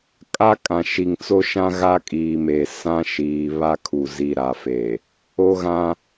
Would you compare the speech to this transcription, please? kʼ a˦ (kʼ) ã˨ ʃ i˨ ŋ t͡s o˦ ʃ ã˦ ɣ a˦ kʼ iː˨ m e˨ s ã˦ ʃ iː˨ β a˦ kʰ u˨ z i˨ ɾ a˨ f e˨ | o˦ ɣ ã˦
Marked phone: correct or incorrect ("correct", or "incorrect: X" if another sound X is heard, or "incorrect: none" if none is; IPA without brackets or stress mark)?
correct